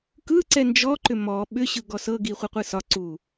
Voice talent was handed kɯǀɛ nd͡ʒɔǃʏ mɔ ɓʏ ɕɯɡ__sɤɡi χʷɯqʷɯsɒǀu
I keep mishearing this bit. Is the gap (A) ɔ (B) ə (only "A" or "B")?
A